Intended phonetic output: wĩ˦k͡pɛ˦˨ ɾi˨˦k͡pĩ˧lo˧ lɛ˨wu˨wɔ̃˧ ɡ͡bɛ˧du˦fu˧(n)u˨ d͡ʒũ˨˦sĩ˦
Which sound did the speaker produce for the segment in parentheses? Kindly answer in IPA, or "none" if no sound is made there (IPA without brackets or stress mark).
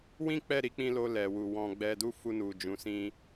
n